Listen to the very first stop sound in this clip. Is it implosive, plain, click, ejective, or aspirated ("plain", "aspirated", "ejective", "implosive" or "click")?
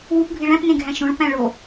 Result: plain